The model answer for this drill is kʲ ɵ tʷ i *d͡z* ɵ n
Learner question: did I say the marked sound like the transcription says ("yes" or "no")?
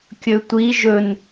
no